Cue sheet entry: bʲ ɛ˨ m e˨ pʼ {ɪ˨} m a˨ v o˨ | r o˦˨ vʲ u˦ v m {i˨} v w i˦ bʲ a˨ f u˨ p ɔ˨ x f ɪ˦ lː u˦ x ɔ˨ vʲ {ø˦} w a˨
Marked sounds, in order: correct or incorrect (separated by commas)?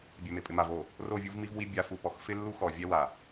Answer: correct, incorrect, incorrect